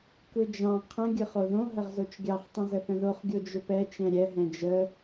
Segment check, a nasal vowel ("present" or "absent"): present